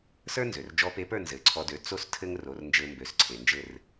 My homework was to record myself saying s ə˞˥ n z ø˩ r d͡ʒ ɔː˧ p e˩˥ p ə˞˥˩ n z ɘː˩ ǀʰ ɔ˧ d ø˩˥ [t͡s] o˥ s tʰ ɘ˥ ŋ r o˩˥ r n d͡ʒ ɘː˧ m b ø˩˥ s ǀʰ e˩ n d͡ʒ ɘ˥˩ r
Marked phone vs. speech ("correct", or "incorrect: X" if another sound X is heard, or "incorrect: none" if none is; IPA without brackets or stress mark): correct